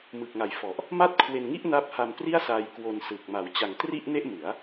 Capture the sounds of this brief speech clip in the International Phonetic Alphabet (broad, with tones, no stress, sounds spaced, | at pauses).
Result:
m ɯ˨˩ k̚ ŋ a˨˩ j f ɔ˨˩ ʔ | m a˥˩ t̚ kʰ w e˧ n ŋ i˥˩ ʔ n a˦˥ p̚ h a˧ m p r i˥˩ a̯ s aː˧ j k w o˧ n s ɯ˨˩ k̚ m a˩˦ w t͡ɕ a˩˦ ŋ t r i˥˩ ʔ n e˥˩ ʔ m ɯ˩˦ a̯